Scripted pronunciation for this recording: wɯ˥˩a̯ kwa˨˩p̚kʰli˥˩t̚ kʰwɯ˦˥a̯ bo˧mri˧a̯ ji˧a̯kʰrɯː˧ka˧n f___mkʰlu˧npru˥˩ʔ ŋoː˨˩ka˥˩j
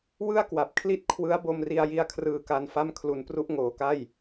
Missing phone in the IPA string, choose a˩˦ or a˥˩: a˥˩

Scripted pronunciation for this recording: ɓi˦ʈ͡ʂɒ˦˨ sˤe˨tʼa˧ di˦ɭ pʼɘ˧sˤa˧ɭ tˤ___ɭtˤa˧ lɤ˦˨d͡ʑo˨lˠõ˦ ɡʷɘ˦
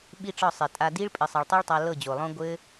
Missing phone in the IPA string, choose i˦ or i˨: i˦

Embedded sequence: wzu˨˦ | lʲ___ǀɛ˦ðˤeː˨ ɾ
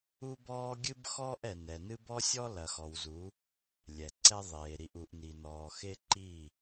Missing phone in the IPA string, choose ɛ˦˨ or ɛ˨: ɛ˨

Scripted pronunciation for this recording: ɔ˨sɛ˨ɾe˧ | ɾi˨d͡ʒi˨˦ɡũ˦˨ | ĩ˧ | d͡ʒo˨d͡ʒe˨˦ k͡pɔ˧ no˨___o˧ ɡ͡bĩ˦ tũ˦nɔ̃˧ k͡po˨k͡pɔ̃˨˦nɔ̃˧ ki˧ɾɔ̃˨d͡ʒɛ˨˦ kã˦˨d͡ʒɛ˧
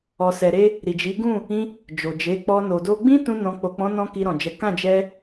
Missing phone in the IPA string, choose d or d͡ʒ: d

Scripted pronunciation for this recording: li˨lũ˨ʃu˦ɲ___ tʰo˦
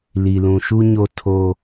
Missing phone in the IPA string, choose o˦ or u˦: o˦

